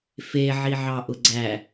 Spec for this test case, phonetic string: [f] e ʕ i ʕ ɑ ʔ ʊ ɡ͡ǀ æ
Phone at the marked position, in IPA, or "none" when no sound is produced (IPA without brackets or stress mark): f